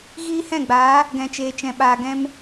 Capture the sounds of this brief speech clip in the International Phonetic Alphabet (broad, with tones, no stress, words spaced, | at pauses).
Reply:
ɣiː˦hɛ̃˦˨ɡ͡baː˨˦ | ɡɛ̃˨t͡ʃeː˨t͡ʃɛ̃˨ɓaː˨ ɡɛ̃˧m